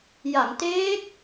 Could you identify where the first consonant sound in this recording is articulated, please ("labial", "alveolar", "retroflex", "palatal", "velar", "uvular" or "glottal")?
palatal